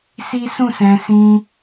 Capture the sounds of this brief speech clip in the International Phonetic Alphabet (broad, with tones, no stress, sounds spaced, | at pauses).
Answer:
s i˦ s ũ˦˨ s ɛ̃˧ s ĩ˧